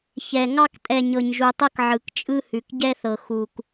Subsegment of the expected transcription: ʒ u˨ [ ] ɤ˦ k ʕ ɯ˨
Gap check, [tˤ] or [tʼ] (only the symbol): tˤ